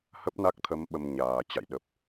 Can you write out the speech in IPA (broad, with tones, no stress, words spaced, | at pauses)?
hə˦˥p̚na˦˥k̚t̪ʰə˨˦m ɓə˧mɲaː˨˩ t͡ɕa̰˧˨jɗə˨˩p̚